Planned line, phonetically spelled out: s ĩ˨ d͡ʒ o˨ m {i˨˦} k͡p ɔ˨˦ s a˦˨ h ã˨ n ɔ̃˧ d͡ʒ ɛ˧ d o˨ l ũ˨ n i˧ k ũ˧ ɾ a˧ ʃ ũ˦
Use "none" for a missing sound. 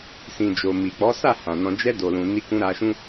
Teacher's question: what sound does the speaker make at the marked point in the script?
i˨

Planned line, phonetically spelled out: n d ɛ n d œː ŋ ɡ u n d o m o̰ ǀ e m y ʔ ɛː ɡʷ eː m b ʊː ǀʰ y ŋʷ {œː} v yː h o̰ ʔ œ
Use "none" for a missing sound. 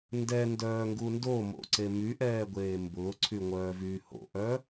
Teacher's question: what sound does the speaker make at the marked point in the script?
œː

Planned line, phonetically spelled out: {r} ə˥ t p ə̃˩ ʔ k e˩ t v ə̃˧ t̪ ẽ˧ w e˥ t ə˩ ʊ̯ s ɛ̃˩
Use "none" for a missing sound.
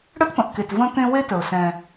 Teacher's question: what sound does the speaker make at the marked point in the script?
ɽ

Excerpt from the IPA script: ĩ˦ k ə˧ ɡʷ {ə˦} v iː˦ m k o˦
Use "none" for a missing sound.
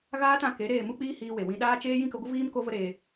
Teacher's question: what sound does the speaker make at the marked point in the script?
ə˦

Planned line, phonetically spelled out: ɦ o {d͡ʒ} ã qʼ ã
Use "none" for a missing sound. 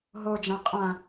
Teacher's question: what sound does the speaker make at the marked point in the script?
d͡ʒ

